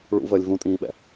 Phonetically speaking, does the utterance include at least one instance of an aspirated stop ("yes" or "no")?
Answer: no